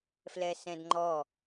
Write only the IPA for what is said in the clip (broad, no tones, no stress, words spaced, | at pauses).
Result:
flɛsɛ̃dŋ͡ǃɔ